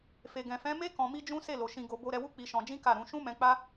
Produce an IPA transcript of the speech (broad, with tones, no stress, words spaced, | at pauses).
fe˨ɡɛ̃˨fɛ̃˨˦me˦ kɔ̃˧mi˦d͡ʒũ˦ se˦˨lo˨ ʃĩ˧ɡo˧ bo˧ɾɛ˧wu˦ k͡pi˧ ʃɔ̃˧ d͡ʒĩ˦ka˦˨ ɾũ˧ ʃũ˦ mɛ̃˧k͡pa˦